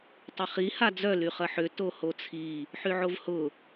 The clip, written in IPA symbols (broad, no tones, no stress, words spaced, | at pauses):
tˤɪχi had͡zœ lyχɐħʏ tohot͡sʰi | ħyʕovhʊ